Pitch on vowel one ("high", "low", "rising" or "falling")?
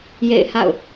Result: falling